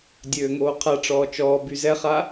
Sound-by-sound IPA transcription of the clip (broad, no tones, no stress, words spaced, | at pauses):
dʲøːŋoːqʰaʈ͡ʂɔː t͡ʃɔː byzɛχa